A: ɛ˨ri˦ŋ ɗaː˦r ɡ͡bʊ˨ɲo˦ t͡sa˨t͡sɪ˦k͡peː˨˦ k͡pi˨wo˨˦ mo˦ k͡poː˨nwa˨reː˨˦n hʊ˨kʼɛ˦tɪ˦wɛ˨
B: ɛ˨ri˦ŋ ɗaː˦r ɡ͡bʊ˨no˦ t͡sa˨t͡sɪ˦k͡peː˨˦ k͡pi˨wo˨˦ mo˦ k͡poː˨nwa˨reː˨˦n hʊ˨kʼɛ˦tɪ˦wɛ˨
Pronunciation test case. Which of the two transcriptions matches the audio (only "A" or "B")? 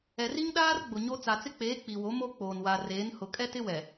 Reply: A